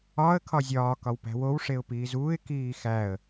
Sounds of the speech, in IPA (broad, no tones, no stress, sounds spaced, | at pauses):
ɒ ə̯ kʰ ɒ zʲ ɒː k ɒ w p æ̤ w o w ʂ e ʊ̯ p iː z uː ɪ̯ k iː x æ ə̯